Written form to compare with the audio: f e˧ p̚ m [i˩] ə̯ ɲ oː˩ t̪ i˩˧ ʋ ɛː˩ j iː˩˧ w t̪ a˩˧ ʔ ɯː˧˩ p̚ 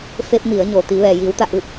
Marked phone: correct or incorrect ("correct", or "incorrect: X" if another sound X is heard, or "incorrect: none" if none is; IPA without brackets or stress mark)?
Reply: incorrect: i˩˧